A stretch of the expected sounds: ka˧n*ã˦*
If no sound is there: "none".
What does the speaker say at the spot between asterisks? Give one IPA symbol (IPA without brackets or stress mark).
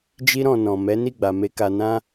ã˦